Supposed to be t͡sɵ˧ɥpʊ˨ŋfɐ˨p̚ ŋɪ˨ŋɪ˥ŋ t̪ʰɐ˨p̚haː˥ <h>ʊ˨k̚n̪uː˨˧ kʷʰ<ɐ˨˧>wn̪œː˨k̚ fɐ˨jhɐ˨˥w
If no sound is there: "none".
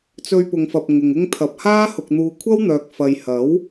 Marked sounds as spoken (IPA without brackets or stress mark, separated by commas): h, ɐ˥